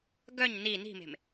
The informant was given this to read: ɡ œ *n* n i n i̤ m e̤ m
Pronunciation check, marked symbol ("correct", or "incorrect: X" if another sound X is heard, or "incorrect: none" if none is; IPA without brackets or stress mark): incorrect: ɲ